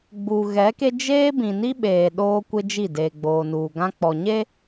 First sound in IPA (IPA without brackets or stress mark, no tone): ɡ͡b